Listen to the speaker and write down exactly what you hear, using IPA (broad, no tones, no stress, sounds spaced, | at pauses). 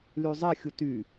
l y zˤ e xʲ u t y